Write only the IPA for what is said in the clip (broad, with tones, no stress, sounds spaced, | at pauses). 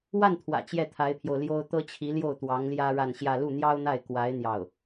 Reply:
w a˥˩ n t̪ʰ w ä̰˨˩ t͡ɕ j ɛ˥˩ t̪ʰ a˧˥ ɪ̯ pʰ j o˧ ʊ̯ l j o˥ ʊ̯ t̪ ɤ˥ t͡ɕʰ i˧˥ l j o˥˩ ʊ̯ t̪ w ɑ˧˥ ŋ l j ä˥ ɻ a˥˧ n ɕ j ä˥˧ l u˥˩ n̪ j ɑ˥ ʊ̯ n̪ a˥˩ ɪ̯ k w a˧˥ ɪ̯ n̪ j ɑ˥˩ ʊ̯